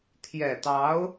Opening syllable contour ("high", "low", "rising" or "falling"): low